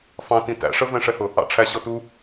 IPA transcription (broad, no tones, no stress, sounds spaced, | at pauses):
f ɑ̃ t ĩ t æ̰ ʂ ə v ɛ̃ ʂ ɛ h ʊ | ɑ̰ ʈ͡ʂʰ æ ɕ ɔ t u